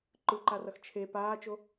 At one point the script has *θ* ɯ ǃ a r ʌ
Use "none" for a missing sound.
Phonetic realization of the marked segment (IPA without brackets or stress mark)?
ǃ